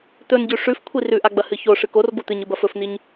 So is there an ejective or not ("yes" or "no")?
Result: no